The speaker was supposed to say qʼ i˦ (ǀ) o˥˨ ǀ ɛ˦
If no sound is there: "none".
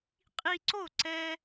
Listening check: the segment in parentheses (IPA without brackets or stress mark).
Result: ǀ